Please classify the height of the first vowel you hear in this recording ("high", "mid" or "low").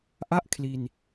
low